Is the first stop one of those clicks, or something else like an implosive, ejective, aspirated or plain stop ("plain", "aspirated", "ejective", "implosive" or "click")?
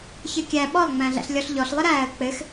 plain